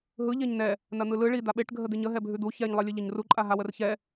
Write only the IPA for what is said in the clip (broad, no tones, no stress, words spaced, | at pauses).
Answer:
ɦɯʎeɲ nɛ | nɐn̪ɯlɯ ɭi d̪aɓeʈ ɡʱəd̪iɲə ɦɛbʱʉd̪u çɛɲlˠelʲɨ ʎɐɲruǃʼa ɦawərçɛ